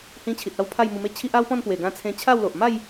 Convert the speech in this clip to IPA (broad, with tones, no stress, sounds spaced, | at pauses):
h ĩ˧ t͡ɕʰ i˨ t̚ a˥˧ w pʰ a˥˧ j m u˧ m e˥˧ t͡ɕʰ i˦ ʔ a˦ w p ɔ̃˥˧ n p w e˨˩ ɡ ã˧ t͡sʰ ẽ˧ t͡ɕʰ a˥˧ w l o˨ ʔ m a˥˧ j